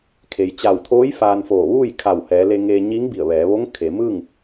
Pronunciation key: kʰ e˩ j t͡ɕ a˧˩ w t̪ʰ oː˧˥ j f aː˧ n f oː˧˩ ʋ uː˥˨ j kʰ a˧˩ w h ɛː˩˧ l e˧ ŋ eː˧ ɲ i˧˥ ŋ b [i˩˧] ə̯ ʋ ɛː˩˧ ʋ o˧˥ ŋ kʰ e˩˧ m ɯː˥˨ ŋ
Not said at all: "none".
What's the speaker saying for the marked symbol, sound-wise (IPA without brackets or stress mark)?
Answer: i˧˩